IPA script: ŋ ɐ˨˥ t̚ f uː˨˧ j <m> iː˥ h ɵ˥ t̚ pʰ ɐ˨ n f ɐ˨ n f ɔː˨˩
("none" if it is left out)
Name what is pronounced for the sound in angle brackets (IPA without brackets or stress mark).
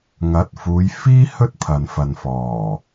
f